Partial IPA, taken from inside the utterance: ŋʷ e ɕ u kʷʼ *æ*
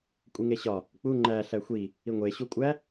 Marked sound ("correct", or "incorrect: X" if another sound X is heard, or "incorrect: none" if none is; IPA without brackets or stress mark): correct